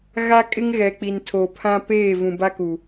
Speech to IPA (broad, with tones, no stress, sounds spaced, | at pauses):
ɣ a˦ kʼ ɪ˦ ŋ ɣ ɛ˨ k͡p i˨ n tʰ o˨ pʰ ã˦ p eː˦˨ v ũ˨ b a˦ k u˨